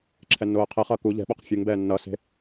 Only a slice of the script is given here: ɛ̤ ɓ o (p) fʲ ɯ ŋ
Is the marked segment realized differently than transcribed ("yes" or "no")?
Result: yes